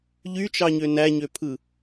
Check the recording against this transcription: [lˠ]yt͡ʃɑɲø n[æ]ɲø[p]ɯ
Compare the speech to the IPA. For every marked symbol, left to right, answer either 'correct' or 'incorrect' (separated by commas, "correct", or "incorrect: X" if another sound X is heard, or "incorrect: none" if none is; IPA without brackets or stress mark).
incorrect: ʎ, correct, incorrect: pʰ